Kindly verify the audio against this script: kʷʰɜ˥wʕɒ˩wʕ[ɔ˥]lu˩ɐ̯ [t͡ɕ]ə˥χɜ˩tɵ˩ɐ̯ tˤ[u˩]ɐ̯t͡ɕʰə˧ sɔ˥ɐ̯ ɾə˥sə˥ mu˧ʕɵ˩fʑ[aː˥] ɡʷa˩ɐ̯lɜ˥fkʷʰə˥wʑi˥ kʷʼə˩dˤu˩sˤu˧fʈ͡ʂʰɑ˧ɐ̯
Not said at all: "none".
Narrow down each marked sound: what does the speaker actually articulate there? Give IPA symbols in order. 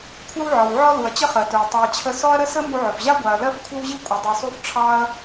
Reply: ɔ˥, t͡ɕ, u˩, a˥

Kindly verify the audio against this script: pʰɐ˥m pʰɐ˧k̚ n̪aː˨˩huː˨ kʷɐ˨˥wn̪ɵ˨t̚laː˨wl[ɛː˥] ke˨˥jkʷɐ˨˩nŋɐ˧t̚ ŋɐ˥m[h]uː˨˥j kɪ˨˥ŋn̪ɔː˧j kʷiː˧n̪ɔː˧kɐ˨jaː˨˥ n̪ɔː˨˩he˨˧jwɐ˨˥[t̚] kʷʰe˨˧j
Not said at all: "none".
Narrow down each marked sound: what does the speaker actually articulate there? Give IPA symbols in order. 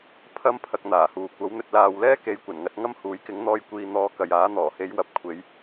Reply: ɛː˥, h, p̚

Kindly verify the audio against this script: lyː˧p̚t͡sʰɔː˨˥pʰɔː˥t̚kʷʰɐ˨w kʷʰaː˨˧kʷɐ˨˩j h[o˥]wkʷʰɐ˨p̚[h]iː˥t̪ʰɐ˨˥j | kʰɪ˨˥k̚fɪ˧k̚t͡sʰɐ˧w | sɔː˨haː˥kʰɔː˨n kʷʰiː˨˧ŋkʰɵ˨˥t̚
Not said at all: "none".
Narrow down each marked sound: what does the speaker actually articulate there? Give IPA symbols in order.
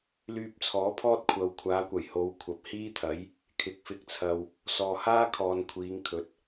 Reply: o˨˧, h

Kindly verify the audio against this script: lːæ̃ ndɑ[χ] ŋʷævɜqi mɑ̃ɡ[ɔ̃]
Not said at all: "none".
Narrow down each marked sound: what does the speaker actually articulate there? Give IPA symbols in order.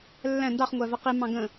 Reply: χ, ə̃

